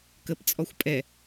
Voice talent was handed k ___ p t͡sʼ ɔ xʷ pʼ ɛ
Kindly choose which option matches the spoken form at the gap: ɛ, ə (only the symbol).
ə